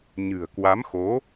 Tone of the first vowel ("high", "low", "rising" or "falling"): low